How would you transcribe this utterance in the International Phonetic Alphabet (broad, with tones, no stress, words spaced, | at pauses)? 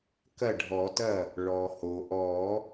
kɐ˥˩ɖʱɔ˨˩˦tɐ˥˩ | ɭɔ˩ho˩ʔɔ˨˩˦